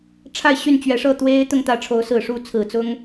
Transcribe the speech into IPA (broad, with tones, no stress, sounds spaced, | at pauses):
ʈ͡ʂʰ a˥˧ ɪ̯ ɕ y˥˩ n t͡ɕ ɥ ɛ˧˥ ʂ ɤ˥˩ t̪ w e˥ ɪ̯ t̪ ʊ˥˧ ŋ t̪ ä˥˩ ʈ͡ʂʰ o˧˥ ʊ̯ s ɹ̩˨˩ ʂ u˥˩ t͡sʰ ɹ̩˨˩ t͡s ʊ˥ ŋ